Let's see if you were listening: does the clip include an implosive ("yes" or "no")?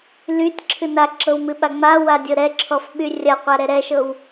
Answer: yes